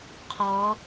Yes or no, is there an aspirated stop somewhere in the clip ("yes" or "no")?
yes